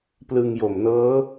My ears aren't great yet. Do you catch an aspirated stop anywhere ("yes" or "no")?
no